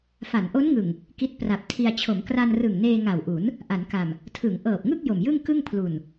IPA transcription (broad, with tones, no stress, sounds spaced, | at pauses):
f a˩˦ n ʔ o˦˥ n ŋ ɯ˨˩ ŋ | k i˦˥ t̚ p r a˨˩ p̚ tʰ i˧ a̯ t͡ɕʰ o˩˦ m k r a˧ n r ɯ˨˩ ŋ n eː˧ ŋ a˨˩ w ʔ u˩˦ n | ʔ a˩˦ n k a˨˩ m | tʰ ɯ˩˦ ŋ ʔ ɤː˨˩ p̚ ŋ ɯ˥˩ k̚ j o˨˩ m j ɯ˥˩ ŋ k ɯ˥˩ ŋ pʰ l u˨˩ n